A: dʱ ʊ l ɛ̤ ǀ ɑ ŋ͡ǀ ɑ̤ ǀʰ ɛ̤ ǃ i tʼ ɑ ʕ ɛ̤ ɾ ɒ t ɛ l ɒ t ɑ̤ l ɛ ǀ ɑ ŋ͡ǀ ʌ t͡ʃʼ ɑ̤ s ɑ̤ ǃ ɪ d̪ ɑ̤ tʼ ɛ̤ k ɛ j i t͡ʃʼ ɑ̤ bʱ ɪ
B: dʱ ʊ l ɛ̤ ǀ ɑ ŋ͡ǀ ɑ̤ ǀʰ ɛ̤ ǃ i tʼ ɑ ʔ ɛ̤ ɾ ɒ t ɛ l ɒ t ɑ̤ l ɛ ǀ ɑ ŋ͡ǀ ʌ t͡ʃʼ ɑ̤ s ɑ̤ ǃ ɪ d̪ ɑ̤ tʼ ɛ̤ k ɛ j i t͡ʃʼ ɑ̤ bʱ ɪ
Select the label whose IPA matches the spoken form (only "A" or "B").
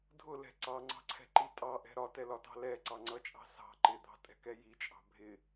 B